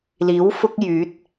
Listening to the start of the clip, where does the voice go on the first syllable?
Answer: rising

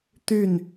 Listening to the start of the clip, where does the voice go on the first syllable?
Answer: falling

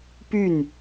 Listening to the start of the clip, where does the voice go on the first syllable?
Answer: falling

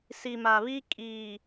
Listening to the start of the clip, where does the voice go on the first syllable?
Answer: low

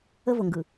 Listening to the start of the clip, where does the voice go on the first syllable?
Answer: high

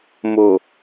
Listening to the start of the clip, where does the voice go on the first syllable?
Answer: low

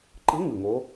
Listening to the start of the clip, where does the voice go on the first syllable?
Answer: rising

